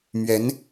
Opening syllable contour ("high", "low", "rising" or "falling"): rising